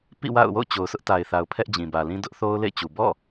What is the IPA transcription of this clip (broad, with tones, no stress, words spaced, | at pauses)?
pḭ˦˨wa̰˦˨ʊ̯wo̰˦˨ʊ̯ t͡ɕo˨ʊ̯sʊ˦ʔta˨ɪ̯θa˨ʊ̯ pʰɛ˦ʔd͡ʑĩ˨bä˨lĩ˦ dʊ˦ʔ θo˦ʊ̯lḛ˦˨ɪ̯t͡ɕu˨ bɔ̰˦˨